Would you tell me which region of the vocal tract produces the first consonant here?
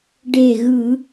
retroflex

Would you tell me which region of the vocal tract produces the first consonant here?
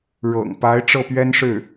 retroflex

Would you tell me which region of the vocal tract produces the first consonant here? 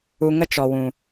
velum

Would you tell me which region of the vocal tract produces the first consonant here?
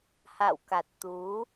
throat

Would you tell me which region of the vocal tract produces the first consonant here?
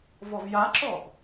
lips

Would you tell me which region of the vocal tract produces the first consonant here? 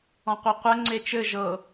uvula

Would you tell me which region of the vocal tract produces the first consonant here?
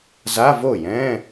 tongue tip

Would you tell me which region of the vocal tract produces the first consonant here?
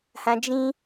throat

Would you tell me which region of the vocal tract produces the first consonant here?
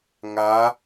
velum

